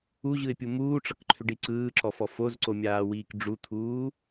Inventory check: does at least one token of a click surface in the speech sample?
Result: yes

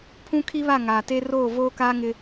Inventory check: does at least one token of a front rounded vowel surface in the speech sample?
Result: no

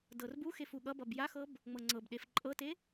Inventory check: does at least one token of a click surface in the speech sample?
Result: yes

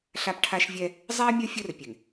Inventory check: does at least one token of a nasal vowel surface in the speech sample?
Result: no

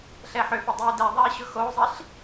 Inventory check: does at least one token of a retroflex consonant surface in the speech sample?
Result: no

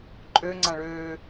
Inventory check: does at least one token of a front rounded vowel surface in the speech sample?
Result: yes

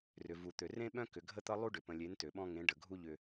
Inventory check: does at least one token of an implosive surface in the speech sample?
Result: yes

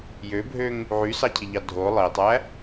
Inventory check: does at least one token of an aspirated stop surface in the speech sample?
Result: yes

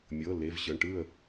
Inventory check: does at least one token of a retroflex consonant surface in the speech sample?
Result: yes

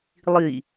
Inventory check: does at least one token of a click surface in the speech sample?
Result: no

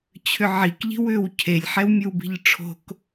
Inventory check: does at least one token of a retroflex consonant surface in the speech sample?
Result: yes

